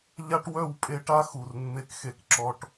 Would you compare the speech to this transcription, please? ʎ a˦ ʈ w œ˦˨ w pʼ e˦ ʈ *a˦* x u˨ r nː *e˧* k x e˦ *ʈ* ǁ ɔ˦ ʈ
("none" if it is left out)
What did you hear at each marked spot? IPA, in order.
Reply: a˦, e˦, k

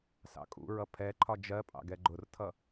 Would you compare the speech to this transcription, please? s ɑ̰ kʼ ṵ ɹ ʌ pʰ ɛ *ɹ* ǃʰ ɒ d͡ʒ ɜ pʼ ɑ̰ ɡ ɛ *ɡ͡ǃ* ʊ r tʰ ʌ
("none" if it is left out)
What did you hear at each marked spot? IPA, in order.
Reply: none, ɡ͡ǃ

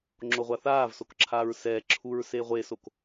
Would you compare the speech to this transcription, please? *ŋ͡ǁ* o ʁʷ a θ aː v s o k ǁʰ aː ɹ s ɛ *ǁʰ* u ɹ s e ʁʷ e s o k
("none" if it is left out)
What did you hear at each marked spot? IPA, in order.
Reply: ŋ͡ǁ, ǁʰ

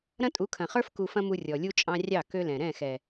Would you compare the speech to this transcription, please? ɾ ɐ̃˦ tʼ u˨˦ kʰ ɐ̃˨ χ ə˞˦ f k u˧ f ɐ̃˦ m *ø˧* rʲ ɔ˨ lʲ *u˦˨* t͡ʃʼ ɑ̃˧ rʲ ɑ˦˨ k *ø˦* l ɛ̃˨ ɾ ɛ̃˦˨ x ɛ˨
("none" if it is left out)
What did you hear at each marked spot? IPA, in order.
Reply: u˧, u˦, ø˦

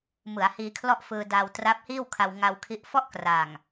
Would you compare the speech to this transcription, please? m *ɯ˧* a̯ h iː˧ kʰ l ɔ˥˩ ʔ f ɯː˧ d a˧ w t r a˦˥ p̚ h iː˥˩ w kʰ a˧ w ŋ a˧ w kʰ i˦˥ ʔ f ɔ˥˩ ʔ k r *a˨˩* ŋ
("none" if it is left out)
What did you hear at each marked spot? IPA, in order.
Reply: ɯ˩˦, a˨˩

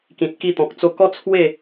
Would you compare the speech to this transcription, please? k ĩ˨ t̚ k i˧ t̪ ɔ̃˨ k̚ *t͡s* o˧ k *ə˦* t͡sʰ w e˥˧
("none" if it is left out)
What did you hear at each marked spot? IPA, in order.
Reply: t͡s, ɔ˦

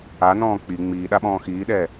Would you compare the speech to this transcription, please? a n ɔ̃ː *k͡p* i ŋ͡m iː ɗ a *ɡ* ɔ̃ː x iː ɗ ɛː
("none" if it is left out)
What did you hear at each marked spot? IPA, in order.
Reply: k͡p, ɓ

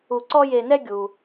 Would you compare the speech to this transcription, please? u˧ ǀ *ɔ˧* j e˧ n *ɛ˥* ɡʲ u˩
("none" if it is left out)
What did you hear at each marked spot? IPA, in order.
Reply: ɔ˥, ɛ˥

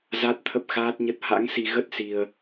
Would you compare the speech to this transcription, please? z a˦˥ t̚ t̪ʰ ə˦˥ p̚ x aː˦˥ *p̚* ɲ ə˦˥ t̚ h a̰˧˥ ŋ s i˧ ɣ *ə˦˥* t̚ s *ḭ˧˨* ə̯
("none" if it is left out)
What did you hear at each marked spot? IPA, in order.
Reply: t̚, ə˦˥, i˧

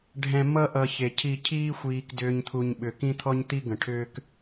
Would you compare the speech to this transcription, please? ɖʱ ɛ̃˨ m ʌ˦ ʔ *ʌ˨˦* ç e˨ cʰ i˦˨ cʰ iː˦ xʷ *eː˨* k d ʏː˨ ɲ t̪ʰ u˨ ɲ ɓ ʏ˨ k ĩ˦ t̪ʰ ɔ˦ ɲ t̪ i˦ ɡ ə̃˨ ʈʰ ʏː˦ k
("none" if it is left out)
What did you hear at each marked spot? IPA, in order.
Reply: ʌ˨, iː˨

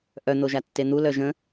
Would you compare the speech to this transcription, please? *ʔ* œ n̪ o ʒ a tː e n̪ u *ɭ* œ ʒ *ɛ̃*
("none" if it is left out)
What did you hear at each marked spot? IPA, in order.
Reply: ʔ, l, ə̃

